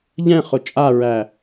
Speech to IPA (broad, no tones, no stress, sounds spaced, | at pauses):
ʎ ɛ̃ χ ʊ t͡ʃʼ a ɹ æ